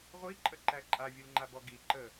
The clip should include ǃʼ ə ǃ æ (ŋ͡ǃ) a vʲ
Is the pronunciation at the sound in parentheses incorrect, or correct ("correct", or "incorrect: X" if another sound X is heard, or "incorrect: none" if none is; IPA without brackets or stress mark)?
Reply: incorrect: ǃʼ